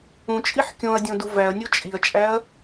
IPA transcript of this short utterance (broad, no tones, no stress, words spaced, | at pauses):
ũt͡ʃʼiħ kʲõɐ̯dʲõ duvæɐ̯nʲo t͡ʃʼiɐ̯t͡ʃʼæɐ̯